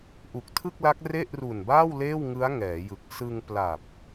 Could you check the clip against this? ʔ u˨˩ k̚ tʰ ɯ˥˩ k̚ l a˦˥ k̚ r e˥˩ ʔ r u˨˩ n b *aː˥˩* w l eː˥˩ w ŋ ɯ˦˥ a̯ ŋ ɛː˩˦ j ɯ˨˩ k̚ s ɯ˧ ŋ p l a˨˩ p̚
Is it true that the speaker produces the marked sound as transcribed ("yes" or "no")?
yes